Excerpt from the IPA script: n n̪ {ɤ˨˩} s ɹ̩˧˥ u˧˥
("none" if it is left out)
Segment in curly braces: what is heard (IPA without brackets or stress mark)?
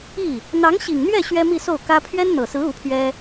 ɤ˨˩